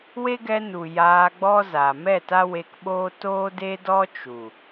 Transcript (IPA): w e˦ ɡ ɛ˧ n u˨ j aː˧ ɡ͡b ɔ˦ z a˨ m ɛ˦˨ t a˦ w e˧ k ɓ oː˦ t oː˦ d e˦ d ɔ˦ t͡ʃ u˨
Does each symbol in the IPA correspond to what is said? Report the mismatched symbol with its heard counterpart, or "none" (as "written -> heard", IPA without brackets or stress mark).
none